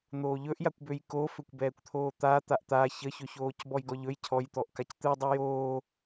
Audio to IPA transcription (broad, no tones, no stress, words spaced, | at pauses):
n̪oːʎɵʔjakʷbøj koføkʷbɛːkʷt̪ʰoː t̪a t̪aʔt̪a çəçɵçoːc bɔjɡɔʎɵj cʰɔj t̪ɔʔkact̪ɯ dˤɛjoː